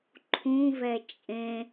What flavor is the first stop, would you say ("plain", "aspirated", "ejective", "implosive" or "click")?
click